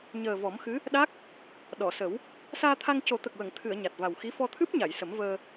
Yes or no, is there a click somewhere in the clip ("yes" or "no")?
no